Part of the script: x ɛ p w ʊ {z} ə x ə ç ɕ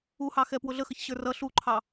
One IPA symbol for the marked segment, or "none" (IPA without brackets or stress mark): ɮ